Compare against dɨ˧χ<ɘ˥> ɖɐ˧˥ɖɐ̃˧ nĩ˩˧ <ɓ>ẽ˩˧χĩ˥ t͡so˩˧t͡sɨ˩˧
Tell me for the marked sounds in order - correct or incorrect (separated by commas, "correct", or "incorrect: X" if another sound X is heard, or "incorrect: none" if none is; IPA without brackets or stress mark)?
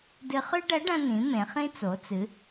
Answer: incorrect: ʉ˥, incorrect: m